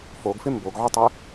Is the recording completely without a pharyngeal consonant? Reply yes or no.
no